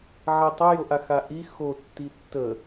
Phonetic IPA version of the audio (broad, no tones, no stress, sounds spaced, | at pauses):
ʕ i tˤ ə j o ʔ a x a ʔ i x o tː i tː ə